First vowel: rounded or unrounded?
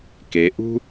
unrounded